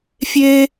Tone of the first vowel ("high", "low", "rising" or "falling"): high